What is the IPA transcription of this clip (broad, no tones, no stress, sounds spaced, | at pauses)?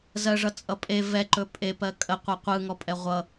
z ɜ ʐ ʌ t͡sʼ ʌ pʼ e v ɛ ǃ ɵ pʼ e p ɜ kʼ ə qʷ ʌ qʷ ɯ ŋ ɔ pʼ ɛ ʁʷ ʌ